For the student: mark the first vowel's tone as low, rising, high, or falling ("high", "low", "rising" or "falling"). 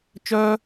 high